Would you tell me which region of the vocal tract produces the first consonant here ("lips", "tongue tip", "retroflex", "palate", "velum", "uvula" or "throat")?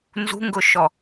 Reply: tongue tip